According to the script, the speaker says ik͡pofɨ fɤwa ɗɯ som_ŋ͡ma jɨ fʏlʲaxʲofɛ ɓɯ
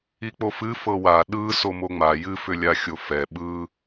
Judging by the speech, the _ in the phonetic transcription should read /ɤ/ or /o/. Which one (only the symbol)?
o